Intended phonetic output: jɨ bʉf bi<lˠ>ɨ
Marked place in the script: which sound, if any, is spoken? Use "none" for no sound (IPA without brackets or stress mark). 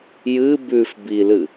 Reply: l